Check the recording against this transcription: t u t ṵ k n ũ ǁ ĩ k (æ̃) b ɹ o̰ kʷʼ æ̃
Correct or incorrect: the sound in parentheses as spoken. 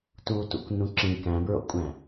correct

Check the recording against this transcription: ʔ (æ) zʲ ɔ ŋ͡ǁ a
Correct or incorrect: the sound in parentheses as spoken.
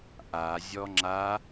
incorrect: a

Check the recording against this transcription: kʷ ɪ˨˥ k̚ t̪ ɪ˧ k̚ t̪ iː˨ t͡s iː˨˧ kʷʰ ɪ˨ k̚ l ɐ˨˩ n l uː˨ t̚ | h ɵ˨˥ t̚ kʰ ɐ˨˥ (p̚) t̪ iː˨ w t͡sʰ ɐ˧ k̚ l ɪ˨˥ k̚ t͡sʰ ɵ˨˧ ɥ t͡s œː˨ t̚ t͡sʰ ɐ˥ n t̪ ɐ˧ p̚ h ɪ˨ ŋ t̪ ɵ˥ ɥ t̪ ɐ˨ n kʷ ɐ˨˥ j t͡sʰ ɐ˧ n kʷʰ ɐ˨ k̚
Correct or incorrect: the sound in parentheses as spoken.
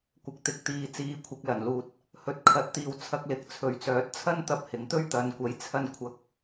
incorrect: t̚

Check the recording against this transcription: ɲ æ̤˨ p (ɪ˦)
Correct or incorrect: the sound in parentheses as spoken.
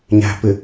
incorrect: ɪ˨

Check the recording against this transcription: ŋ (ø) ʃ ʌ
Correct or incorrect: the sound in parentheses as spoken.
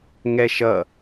incorrect: ɛ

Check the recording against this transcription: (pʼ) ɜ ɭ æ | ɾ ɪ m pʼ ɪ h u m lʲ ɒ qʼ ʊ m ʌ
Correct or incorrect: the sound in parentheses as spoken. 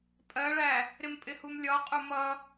correct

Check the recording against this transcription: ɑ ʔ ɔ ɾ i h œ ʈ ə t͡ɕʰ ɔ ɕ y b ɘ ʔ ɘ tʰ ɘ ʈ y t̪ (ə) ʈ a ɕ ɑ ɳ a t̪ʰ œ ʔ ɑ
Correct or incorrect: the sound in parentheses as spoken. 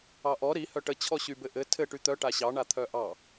incorrect: œ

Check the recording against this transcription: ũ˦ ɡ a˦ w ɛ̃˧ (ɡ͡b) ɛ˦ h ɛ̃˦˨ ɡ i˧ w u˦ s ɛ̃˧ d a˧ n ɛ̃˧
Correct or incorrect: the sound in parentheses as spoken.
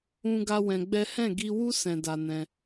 correct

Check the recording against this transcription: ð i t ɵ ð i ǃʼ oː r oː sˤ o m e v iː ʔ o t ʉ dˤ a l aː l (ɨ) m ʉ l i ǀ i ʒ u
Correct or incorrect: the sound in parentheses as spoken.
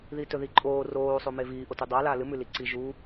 correct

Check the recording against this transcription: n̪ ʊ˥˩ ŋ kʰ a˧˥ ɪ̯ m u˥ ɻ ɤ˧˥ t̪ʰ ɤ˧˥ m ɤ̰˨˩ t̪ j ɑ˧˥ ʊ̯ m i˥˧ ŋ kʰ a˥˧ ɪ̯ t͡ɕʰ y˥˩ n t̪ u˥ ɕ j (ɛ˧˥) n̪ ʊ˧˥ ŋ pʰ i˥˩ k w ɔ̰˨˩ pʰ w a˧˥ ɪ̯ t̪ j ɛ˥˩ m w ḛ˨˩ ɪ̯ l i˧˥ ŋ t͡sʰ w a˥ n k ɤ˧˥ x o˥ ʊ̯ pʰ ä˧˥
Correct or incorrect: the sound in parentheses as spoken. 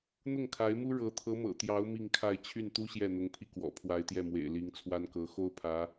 incorrect: ɛ˥˩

